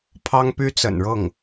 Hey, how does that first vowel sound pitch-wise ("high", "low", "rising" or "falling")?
high